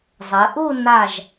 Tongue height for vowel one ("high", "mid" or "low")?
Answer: mid